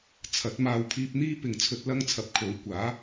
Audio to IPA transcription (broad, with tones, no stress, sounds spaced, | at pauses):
t͡sʰ ɐ˨˥ t̚ m aː˧ w pʰ iː˧ p̚ n̪ iː˥ p ɪ˨ ŋ t͡sʰ ɵ˧ t̚ l ɐ˥ ŋ t͡sʰ ɐ˨˥ p̚ kʰ o˨˥ w kʷ aː˨˥